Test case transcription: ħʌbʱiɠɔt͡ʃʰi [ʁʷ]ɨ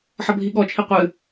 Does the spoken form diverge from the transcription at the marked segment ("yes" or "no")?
yes